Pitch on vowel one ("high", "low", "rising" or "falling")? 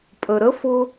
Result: low